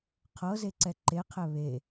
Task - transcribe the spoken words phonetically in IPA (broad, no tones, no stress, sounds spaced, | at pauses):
qʰ ɤ z e ǀ ɛ ǃ e qʰ ɛ β e